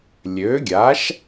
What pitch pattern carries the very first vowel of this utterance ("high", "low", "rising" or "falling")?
rising